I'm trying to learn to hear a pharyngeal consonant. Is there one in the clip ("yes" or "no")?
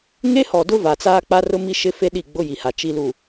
no